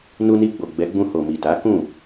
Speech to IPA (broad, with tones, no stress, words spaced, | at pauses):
nu˧ni˧ɡ͡bo˨ ɡ͡bɛ˨˦ɡ͡bũ˧ ho˨mi˨ta˨˦kũ˦˨